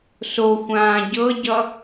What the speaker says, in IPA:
soxʷãː ɟɤɟʌ

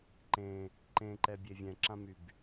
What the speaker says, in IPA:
ǃẽ | ǃẽǃɛbʲe vʲɛ̃ǁãmyb

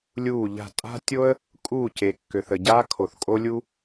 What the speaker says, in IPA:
lʲuː˥˨ʎa̤˥˨ tʼa̤˥tʲo˥ə̯ | kʼuː˥˨ce˨kːø˨θə˨ ɟaː˥kʰo˨θkʼo˥lʲu˥

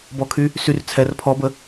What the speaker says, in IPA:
bɔkʰy | syr t͡sʰɛr pʰɔbə

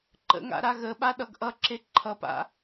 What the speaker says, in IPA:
ǃə̰ŋa̰ ɾaɣəɓa ɗʌɡʔʌǁe ǃʰʌpa̰

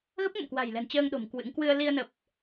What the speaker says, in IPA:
ɣə˦˥p̚ŋə̰˧˨mkwa̤˨˩jlɛ̤˨˩n t͡ɕəː˧ŋɗo̤˨˩m kwɨ̰˧˥ŋ kwɨ˧ə̯li˧ə̯ nə˨˩p̚

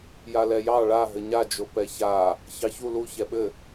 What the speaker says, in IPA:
jalɛjɑ ɭa ɦɘɲa d͡ʒopɛça | çɑçu lu çɛɓɘ

